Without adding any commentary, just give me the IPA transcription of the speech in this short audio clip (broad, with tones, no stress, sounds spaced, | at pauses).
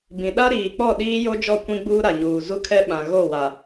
b ĩ˨ ɗ a˦ ɾ iː˨ k͡p ɔ˦˨ ɗ iː˦ j o˦ d͡ʒ ɔ˦˨ kʷ ĩ˦ ɡ͡b uː˦ ɾ a˨ ɲ uː˨ z u˦ kʰ ɛ˦ ɓ ã˨ ɣ o˦˨ w a˨